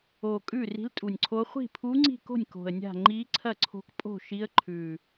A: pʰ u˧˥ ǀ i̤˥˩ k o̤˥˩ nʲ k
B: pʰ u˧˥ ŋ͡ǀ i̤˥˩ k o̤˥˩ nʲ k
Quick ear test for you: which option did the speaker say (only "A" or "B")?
B